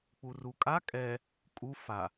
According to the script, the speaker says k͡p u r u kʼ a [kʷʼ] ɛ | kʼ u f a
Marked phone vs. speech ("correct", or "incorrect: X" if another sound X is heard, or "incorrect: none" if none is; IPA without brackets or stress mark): incorrect: kʼ